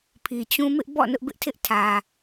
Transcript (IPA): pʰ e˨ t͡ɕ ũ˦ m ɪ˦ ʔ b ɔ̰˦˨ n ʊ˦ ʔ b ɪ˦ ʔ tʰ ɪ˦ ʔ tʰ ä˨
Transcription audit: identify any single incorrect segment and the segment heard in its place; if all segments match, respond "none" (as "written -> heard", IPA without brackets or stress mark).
e˨ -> i˨